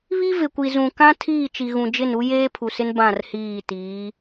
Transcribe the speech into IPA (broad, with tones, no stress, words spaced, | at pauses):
βi˦ vɪ˨kʷi˨ zũ˨kã˦ tʰiː˦˨t͡ʃi˨ɣũ˨d͡ʒɪ˦˨n u˦jeː˦pʰu˨sɪ˦n bã˦˨rhiː˦˨tiː˨˦